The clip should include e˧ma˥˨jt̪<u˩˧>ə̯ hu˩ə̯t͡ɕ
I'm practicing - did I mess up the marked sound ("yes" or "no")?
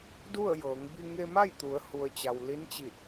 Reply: no